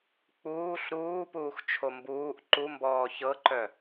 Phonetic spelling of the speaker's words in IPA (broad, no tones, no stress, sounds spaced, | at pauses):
k͡p uː ɬ ɾ uː p uː x t͡ʃʰ o m b uː ʔ ǃ u m b ɔː ç ɤ ǃ œ